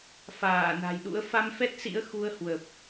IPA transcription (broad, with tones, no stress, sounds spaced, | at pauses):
f aː˧˩ n a̤˨˩ j ɗ ṵ˧˥ ə̯ f a˧ m f ɛ˦˥ t̚ s ḭ˧˥ ə̯ x u˧ ə̯ h w ə˨˩ p̚